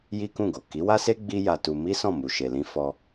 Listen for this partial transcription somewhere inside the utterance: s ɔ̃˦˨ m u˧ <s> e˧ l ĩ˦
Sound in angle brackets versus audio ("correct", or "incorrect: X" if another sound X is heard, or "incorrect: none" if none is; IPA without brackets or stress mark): incorrect: ʃ